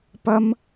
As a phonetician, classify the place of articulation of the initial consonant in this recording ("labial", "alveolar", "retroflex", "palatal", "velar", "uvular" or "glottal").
labial